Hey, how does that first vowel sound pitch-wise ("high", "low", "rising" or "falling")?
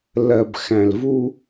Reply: low